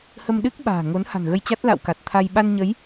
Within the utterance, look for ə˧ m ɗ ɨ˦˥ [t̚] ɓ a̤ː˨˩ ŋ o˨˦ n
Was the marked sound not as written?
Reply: yes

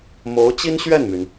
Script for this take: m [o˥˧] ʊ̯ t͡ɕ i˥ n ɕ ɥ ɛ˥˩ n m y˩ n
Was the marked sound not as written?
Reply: yes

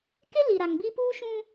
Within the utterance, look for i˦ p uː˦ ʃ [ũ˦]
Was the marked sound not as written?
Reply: no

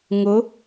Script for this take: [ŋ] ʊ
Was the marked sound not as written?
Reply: no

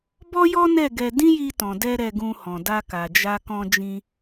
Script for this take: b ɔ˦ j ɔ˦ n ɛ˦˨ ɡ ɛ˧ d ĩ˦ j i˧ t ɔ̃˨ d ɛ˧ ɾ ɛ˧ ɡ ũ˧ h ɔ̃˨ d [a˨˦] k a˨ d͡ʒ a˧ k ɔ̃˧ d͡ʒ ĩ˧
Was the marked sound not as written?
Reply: yes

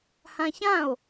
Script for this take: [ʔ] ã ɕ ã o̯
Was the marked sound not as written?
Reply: yes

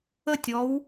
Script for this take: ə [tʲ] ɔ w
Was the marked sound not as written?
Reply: no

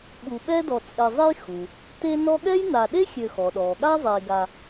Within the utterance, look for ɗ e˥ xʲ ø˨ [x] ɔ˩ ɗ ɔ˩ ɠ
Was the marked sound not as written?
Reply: no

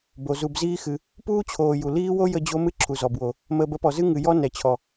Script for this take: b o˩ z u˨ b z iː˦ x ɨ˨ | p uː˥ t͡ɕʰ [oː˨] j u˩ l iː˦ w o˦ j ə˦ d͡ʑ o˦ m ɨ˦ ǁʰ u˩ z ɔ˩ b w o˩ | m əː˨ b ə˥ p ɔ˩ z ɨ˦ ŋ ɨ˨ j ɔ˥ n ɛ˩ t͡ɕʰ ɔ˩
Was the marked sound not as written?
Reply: no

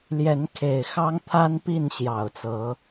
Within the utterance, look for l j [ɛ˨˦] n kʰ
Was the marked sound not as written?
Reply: no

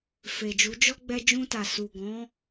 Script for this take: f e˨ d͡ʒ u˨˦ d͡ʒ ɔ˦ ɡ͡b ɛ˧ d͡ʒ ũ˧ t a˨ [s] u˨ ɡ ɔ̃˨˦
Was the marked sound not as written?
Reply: no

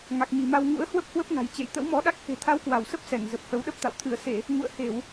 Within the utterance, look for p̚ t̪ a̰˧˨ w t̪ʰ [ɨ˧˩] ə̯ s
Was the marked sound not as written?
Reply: no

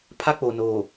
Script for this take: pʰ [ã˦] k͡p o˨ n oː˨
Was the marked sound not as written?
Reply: yes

